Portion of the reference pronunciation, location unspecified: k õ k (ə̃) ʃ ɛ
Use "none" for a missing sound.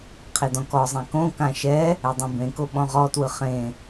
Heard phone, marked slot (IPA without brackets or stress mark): ã